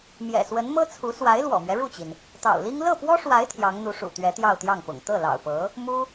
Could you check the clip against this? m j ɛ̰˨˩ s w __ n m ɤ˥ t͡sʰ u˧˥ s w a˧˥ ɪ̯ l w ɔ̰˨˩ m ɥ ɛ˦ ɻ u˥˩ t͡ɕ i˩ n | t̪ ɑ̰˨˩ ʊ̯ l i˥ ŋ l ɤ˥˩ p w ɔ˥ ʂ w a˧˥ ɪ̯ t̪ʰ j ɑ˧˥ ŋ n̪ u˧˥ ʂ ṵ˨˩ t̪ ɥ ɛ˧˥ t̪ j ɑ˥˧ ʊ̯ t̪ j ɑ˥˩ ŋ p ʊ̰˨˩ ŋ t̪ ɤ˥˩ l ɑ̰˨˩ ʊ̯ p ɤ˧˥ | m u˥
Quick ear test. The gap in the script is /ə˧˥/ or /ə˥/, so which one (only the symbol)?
ə˧˥